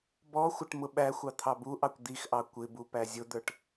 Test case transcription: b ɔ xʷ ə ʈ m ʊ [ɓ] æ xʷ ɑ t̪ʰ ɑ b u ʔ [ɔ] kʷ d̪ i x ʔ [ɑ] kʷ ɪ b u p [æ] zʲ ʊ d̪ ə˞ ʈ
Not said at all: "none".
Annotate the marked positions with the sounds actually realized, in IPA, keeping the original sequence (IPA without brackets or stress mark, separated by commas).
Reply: ɓ, ɑ, ɑ, æ